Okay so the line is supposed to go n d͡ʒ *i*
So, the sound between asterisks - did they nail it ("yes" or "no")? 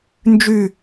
no